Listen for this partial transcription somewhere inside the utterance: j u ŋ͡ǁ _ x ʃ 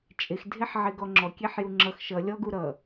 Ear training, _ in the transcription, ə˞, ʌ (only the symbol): ʌ